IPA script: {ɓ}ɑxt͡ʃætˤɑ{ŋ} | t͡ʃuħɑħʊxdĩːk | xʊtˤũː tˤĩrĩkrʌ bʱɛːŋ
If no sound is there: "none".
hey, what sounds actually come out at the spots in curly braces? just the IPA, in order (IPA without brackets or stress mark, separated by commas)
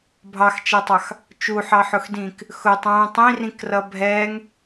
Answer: bʱ, x